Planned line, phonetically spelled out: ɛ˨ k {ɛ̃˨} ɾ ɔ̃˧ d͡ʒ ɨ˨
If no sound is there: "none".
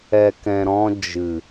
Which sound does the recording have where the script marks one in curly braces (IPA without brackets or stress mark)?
ɛ̃˨